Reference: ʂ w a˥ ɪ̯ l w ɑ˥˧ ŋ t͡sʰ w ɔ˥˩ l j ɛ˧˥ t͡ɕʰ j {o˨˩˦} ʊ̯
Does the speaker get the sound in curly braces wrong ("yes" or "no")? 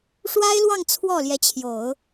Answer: no